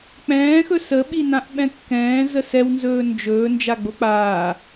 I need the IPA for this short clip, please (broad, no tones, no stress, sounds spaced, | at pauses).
k͡p ɛ̃ː x ɵ s ə ɓ i n ã ʔ ɓ ɛ̃ kː ɛ̃ː z ə s ɛ w n z ɵː n d͡ʒ ɵː n d͡ʒ a ɡ͡b o k͡p aː